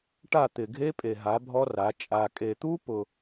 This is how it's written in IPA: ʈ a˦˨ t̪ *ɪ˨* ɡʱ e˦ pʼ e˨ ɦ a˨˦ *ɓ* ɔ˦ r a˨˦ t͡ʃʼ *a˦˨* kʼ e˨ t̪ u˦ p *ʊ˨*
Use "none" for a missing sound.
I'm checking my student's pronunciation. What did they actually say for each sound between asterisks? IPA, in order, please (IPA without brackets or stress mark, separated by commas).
ɪ˨, bʱ, a˨, ʊ˨